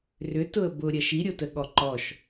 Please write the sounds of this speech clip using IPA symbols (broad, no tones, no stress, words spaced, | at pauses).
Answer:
rʏtʊə̯ bʊɾʲɐ ʃiɾʲotəɠɔ ǃɔʃ